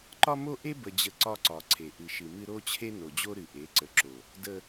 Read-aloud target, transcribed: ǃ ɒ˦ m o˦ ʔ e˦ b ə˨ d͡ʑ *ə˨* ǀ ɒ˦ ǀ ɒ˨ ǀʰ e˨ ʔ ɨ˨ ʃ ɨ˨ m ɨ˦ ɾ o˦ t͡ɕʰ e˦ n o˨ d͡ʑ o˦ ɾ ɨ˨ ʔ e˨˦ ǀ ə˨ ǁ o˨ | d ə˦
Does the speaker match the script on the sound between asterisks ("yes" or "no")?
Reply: yes